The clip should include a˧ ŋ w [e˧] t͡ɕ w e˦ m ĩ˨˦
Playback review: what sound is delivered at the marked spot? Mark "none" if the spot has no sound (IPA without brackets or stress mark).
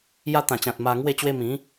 e˥˧